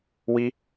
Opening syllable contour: high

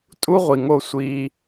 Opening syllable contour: high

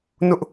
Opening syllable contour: high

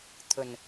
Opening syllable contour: low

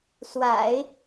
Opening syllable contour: low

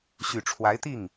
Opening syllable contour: low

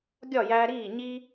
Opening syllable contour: falling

